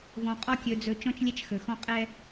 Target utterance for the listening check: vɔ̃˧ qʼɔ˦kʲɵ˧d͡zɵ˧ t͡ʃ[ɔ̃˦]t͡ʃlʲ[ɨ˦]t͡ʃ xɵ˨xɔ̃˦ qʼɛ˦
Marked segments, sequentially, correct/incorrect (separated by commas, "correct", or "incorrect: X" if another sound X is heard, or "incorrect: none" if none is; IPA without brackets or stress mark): correct, incorrect: ɛ˦